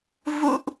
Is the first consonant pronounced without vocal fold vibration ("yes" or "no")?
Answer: no